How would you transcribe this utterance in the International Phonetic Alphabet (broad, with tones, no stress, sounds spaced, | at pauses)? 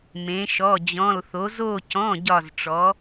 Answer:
m ẽ˩˧ ʃ ɔ˩˧˩ d͡ʑ ɔ̃˩˧˩ l θ o˩˧ z o˧˩ c ɔ̃˩˧˩ ɟ ɒ˧˩ z ʈ͡ʂ ɔ˩˧